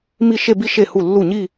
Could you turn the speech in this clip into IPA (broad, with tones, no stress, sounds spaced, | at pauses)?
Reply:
m i˥˧ ʃ e˥˧ b i˥˧ ʃ e˥˩ h u˥˩ lː u˥˩ ɲ i˥˧